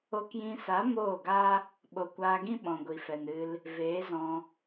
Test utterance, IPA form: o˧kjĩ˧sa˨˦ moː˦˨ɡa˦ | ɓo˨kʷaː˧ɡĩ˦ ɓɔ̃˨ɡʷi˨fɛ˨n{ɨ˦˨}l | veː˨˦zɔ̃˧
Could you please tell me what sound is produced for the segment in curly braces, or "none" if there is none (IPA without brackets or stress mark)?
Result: ɨ˧